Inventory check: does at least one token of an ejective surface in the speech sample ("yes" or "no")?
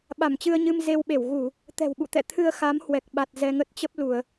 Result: no